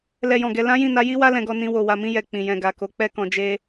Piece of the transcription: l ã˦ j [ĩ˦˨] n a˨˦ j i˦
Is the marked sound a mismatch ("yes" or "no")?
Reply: no